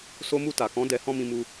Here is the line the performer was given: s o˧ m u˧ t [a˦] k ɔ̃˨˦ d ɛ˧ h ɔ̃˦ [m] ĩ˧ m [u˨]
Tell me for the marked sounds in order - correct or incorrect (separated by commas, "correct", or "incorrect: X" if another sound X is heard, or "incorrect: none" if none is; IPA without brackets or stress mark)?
incorrect: a˨, correct, incorrect: u˧